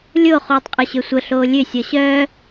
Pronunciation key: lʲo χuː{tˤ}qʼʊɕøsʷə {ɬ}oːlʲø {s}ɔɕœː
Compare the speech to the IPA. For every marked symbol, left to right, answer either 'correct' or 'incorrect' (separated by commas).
correct, correct, incorrect